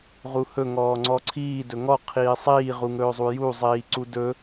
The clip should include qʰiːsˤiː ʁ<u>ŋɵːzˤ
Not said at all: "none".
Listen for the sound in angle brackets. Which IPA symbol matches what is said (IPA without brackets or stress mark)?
u